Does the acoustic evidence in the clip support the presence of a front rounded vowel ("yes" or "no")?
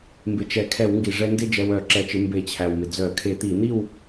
yes